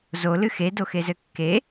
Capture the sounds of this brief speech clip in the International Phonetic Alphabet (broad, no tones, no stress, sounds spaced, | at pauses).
z o l ɨ x e d o x e z ɘ kː e